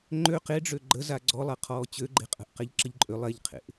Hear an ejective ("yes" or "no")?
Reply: yes